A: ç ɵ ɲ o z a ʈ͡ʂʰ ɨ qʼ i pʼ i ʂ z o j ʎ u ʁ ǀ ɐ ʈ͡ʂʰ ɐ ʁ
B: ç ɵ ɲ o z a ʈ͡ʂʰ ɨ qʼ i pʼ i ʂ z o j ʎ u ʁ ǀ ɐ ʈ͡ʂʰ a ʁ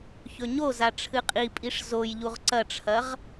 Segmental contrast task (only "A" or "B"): A